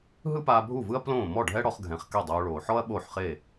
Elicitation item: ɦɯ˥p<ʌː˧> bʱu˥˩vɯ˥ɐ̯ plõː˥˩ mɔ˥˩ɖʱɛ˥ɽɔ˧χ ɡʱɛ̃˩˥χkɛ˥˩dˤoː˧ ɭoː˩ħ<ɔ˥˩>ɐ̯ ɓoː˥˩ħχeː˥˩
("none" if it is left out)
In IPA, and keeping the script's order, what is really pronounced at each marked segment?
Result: aː˧, ɔ˥

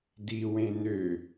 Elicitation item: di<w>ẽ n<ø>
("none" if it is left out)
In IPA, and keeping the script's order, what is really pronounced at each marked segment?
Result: w, ø

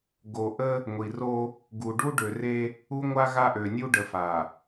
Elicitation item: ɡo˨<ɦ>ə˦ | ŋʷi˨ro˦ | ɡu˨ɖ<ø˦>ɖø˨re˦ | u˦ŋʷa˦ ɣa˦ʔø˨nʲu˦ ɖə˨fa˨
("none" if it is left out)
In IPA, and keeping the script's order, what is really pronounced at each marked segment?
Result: ʔ, u˦

